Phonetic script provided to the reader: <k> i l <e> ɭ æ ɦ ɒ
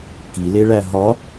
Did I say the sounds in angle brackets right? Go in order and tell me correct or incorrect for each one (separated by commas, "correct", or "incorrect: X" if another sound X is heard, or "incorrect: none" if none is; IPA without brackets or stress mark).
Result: correct, correct